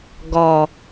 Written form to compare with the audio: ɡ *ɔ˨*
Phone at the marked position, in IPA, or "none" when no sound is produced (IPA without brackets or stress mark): ɔ˨